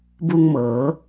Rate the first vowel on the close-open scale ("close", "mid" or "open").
close